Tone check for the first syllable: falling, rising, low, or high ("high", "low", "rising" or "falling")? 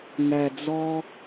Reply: low